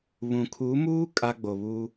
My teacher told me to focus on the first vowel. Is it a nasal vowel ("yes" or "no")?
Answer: yes